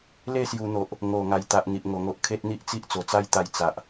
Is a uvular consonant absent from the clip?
yes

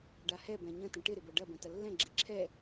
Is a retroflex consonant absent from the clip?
no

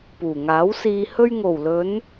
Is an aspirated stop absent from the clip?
yes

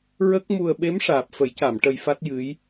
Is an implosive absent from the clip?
no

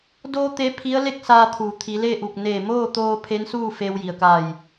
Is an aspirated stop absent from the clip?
no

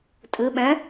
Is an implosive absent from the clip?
no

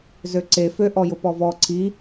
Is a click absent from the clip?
no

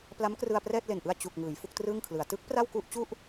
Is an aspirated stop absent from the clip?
no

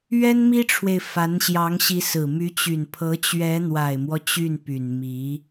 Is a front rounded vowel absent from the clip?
no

